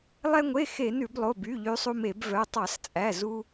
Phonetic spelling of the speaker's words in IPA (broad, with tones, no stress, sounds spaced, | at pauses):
lˠ ɛ˧ ŋʷ e˩˧˩ x e˧˩˧ n ʉ˧˩˧ b lˠ o˩˧˩ b y˩˧˩ ʎ y˧ sˤ u˧ m e˧˩˧ b v œ˩˧˩ tˤ ɑ˧˩˧ s t͡sʼ æ˩˧˩ z u˧